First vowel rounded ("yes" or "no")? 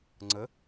no